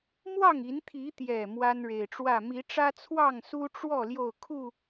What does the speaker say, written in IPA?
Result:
m w ɑ˥˨ ŋ i˨˦ n t̪ʰ i˨˦ t̪ j ɛ˨˩ m w a˦ n ɻ e˨˩ ɪ̯ ʈ͡ʂ w ä˥˨ m i˨˦ ʈ͡ʂ ä˦ t͡sʰ w ɑ˥˨ ŋ s u˦ ʈ͡ʂ w ɔ˥˨ l j o˥˨ ʊ̯ kʰ u˥˨

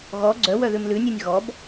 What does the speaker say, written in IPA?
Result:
ɣ ɔ ɡ͡ǀ œ w œ ð ʉ m l ʉ nʲ ʉ nʲ ɣ ɔ b

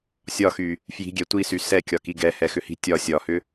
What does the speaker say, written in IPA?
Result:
sʲ ɒ x y | f j i̤ ɡʲ ɛ tʷ i s y s ɛ kʲ ɒ k i ɡ ɛ h ɛ x ʏ h i̤ tʲ ɒ sʲ ɒ h ʏ

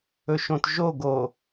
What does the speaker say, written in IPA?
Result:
ɵ ʃ õ t ʒ o ɡ o

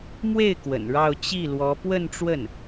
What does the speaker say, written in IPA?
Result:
m w e˥˩ ɪ̯ k w ə̰˨˩ n ɻ ɑ˥˧ ʊ̯ t͡ɕ i˥˩ l w ɔ˧˥ p w ə˥˧ n ʈ͡ʂ w ə˥˩ n

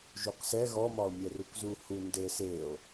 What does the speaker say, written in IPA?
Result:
ʒ u q s ɛ ɣ ɔ m ɒ o̯ mʲ ɛ r u k z u h u n d ɘ s e o̯

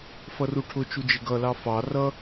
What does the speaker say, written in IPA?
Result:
f ʌ r u ʈʰ ʊ t͡ʃ u d͡ʒ ɪ ɡ ʌ l ɑ f ɑ r ʌ

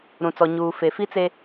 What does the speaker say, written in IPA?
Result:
ɾ ũ˨ t͡s ɔ˨ ɲ uː˨ f e˨ f i˦ t͡s e˦

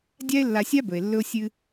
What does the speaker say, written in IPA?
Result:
dʲ a˥ e̯ lː a˧ sʲ a˥ b ɵ˩ e̯ lː ɵ˥ o̯ sʲ ɨ˥

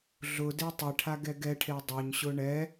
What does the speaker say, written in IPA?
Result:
ɮ ʊ d e tˤ e ʈʰ a ɡ ɛ ɡ ɛ ʈʰ e dˤ o ɲ ɕ ʊ ɳ ɛ

